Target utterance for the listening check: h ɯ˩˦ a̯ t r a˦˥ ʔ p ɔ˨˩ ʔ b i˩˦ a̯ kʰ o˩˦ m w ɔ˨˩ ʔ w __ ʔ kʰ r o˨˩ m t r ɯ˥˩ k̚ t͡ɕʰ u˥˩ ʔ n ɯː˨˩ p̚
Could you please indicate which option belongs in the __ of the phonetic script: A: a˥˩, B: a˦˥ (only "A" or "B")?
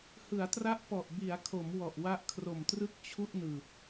B